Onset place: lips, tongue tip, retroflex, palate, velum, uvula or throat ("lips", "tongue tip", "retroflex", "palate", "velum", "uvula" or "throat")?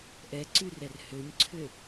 throat